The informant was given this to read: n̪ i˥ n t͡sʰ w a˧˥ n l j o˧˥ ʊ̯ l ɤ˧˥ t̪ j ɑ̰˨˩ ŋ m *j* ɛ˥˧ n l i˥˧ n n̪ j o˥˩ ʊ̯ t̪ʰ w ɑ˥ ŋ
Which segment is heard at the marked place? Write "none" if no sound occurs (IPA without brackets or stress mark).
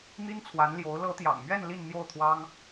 ɥ